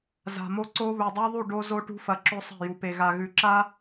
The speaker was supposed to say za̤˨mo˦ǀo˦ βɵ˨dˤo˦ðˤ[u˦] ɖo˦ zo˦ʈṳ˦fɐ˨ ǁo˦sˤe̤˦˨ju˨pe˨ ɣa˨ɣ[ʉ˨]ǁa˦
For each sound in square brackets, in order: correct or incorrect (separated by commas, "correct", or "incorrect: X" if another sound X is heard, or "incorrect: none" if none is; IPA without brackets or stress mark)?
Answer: incorrect: u˦˨, correct